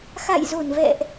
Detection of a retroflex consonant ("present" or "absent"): absent